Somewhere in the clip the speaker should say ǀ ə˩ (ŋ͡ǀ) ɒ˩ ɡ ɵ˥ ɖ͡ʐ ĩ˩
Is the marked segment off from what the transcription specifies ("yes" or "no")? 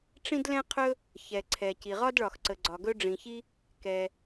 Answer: yes